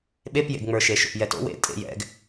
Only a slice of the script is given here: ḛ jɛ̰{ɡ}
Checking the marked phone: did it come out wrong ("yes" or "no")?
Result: no